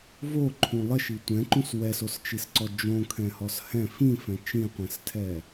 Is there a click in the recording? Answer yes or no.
yes